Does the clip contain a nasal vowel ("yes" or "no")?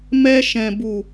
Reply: yes